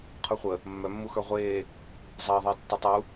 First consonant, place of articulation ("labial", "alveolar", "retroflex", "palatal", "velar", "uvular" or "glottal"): uvular